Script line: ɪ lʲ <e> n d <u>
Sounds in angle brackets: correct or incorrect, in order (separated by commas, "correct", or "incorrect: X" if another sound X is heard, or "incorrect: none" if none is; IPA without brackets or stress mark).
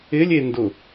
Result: correct, incorrect: ʊ